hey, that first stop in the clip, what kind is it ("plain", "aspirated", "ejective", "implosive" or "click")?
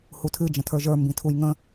aspirated